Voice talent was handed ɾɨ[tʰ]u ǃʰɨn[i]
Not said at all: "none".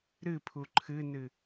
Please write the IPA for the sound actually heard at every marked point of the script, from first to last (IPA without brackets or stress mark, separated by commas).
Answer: pʰ, ɨ